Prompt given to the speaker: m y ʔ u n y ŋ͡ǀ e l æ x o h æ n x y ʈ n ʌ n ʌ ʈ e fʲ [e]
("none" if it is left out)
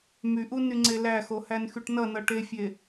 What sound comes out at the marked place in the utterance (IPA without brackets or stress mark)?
e